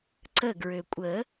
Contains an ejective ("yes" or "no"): yes